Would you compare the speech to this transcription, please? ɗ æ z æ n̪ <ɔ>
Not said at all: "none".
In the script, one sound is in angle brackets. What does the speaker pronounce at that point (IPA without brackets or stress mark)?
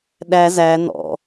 ɔ̰